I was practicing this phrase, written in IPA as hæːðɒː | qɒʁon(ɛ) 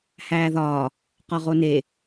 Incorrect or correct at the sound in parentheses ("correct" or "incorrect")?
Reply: incorrect